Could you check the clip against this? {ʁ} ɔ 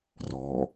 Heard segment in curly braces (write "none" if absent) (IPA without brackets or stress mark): r